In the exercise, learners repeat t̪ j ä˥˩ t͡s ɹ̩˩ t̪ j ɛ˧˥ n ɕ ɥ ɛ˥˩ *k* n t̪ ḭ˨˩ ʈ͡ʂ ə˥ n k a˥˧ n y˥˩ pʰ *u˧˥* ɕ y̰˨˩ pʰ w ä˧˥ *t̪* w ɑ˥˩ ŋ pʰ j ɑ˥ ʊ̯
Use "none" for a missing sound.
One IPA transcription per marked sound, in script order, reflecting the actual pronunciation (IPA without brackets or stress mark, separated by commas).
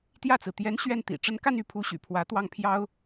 none, u˧˥, t̪